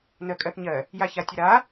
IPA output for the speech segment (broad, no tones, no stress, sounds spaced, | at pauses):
n ɜ kʼ ɜ θ ɲ ɜ | j a ç a tʲ ə ɾ a